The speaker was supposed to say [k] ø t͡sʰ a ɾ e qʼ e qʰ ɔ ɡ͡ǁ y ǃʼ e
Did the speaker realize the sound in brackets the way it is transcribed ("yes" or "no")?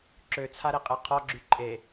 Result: no